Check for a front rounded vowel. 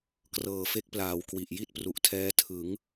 absent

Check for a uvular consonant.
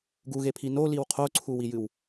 present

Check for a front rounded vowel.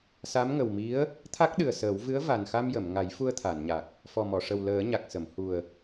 absent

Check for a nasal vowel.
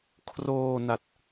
absent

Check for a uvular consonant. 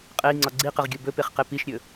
present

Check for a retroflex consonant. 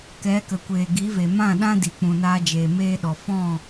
absent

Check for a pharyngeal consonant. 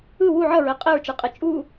present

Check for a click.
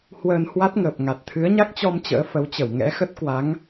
absent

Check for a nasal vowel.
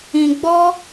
present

